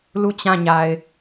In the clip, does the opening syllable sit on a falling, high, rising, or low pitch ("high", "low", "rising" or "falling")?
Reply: falling